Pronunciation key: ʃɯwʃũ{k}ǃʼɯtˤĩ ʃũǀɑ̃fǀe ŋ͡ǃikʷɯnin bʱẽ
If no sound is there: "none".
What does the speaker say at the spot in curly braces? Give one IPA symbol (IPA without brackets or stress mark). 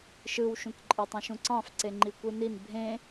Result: k